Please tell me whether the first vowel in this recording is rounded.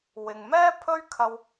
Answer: no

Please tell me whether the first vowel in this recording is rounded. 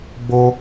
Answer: yes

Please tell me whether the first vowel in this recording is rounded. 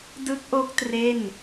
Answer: no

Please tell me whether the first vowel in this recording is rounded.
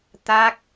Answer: no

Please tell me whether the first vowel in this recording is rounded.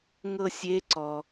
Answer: no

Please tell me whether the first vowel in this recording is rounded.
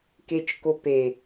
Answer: no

